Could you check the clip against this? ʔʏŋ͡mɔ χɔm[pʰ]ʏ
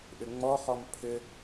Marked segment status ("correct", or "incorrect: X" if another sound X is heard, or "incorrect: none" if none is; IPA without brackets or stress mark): correct